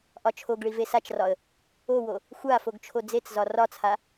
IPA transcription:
ʔ ɒ t͡ʃʰ o ɡ ɭ i v e s a t͡ʃ r ɒ ə̯ | o w o | xʷ a f o ɡ t͡ʃʰ o d͡z e t͡s z ɒ r ɒ t͡sʰ a

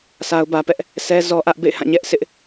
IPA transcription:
s a˦ ʊ̯ b ä˦ p ɛ˦ ʔ | s ɛ˦ z ɔ˦ ʔ ä˦ ʔ b ḛ˦˨ ɪ̯ h ã˦˨ ɲ ɛ˦ ʔ sʰ ɪ˦ ʔ

